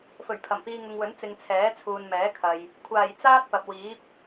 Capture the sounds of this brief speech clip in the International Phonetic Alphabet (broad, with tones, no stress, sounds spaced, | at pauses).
f ɵ˨˩ ɥ pʰ ɐ˨˩ m p iː˧ ŋ ʊ˨ ŋ w ɵ˨˥ n t͡s ɪ˨ ŋ t͡sʰ ɛː˨˥ t͡sʰ uː˨ n m ɛː˨˥ kʰ ɐ˨ j | kʷʰ aː˨˩ j t͡s aː˥ t̚ p ɐ˨ p̚ w iː˨˥ p̚